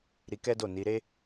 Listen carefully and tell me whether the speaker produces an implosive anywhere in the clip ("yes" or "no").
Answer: no